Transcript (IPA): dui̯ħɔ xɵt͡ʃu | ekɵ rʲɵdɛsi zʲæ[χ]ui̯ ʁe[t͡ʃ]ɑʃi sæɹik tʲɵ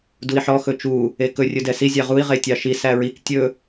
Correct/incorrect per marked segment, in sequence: incorrect: ʁ, incorrect: tʲ

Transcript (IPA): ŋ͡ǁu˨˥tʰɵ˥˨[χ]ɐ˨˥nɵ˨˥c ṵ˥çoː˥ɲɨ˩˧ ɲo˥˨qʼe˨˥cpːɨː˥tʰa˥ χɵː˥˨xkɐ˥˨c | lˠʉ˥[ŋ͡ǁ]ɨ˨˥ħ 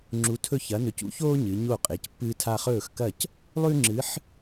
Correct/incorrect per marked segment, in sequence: incorrect: ç, correct

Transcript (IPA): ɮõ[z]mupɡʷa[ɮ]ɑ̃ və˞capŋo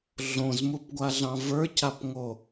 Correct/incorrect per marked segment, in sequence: correct, correct

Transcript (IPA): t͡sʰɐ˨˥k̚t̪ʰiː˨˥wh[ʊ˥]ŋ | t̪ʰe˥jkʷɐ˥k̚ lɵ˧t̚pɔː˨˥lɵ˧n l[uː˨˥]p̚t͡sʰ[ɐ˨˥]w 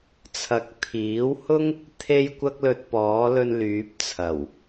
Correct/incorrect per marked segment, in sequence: correct, incorrect: yː˨˥, incorrect: ɐ˨˩

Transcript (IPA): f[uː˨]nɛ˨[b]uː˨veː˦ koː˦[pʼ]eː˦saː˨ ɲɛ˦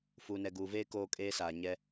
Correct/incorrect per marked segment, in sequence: correct, incorrect: ɡ, incorrect: kʼ

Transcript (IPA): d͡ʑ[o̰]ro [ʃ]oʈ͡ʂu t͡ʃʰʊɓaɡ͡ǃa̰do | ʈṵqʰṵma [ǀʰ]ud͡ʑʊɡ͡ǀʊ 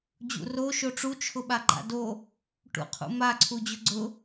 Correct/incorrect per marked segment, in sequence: incorrect: ṵ, correct, correct

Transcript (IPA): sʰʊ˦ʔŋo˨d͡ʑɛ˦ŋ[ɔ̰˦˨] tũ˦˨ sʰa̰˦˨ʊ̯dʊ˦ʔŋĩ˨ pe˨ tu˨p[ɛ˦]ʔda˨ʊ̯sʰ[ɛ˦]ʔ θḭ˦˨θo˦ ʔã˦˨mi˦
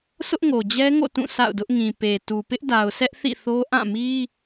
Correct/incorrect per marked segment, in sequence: incorrect: o̰˦˨, incorrect: ɪ˦, correct

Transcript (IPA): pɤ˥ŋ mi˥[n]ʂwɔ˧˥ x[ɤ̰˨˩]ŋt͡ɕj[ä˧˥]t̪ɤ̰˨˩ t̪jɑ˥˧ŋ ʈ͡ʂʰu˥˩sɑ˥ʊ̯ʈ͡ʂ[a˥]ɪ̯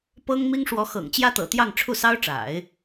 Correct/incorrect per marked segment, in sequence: incorrect: ŋ, correct, incorrect: ä˥, incorrect: a̰˨˩˦

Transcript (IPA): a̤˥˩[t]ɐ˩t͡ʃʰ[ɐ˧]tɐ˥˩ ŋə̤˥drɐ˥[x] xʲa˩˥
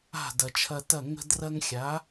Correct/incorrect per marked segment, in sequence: incorrect: d, correct, incorrect: ŋ

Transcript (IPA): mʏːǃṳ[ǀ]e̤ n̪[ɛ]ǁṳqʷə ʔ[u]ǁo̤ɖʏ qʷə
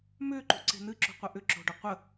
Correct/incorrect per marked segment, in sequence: correct, incorrect: ɨ, incorrect: ʏ

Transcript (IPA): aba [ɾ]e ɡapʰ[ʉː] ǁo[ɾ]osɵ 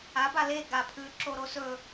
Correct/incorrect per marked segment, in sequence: incorrect: l, correct, correct

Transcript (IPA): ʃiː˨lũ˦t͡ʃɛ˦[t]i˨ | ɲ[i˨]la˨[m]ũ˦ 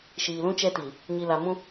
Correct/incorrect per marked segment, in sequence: correct, correct, correct

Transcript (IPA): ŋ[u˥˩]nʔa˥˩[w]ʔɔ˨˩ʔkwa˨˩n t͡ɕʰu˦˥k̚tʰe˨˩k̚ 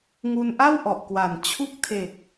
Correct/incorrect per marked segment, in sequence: incorrect: u˧, correct

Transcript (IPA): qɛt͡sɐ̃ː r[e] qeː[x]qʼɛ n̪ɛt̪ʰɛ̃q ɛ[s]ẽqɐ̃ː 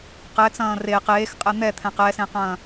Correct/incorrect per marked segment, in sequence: correct, correct, correct

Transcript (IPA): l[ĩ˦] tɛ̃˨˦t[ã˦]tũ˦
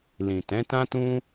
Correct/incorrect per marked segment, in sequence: incorrect: ĩ˨, correct

